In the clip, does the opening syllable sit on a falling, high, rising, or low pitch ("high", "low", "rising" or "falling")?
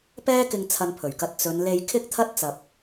high